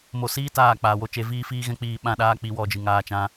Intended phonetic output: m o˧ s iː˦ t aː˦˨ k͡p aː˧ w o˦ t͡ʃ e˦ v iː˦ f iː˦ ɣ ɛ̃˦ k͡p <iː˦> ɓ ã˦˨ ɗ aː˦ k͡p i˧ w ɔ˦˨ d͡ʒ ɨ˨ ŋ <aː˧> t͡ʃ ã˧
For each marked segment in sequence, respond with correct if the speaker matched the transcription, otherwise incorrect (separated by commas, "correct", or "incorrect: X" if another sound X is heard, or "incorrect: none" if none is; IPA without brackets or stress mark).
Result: incorrect: iː˧, correct